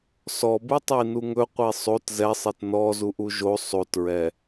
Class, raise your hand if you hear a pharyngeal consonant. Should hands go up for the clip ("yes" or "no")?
no